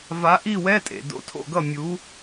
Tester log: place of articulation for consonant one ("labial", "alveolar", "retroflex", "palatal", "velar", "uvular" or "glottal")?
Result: labial